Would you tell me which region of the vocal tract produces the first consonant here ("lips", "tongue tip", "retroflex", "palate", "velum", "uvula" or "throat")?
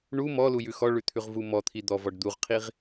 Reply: retroflex